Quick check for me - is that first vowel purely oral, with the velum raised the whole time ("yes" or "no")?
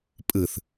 yes